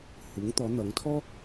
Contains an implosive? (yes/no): no